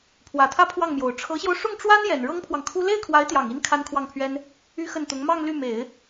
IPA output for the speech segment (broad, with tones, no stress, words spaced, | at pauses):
pʰwä˨˩t̪ʰä˥˧ pʰwɑ˥˩ŋmjo˨˩ʊ̯ ʈ͡ʂʰɤ˧˥ɕjo˧ʊ̯ ʂʊ˥˩ŋʈ͡ʂwa˥n jɛ˨˩n ɻɤ˥ŋpʰwɑ˨ŋkʰu˥ le˥˩ɪ̯kʰwa˧˥ɪ̯t̪jɑ˨˩ŋi˧˥n kʰa˥nkʰwɑ˥˩ŋpʰɥɛ˥n | y˥ xə˥˩nt̪ʊ˧˥ŋ mɑ˥˧ŋ ly˥˩ me˨˩˦ɪ̯